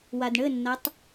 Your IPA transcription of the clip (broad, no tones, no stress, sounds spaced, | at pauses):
w a d ɳ ɘ nː a tˤ